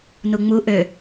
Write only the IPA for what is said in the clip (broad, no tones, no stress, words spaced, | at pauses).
nuŋ͡mu ʔø